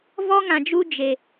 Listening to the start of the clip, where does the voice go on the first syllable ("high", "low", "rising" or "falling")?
high